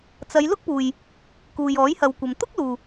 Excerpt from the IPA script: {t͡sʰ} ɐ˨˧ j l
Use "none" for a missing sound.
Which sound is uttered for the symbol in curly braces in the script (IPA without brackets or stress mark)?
t͡s